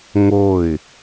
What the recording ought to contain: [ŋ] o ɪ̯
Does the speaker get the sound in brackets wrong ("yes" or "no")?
no